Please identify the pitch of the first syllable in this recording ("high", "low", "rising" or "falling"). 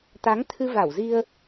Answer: rising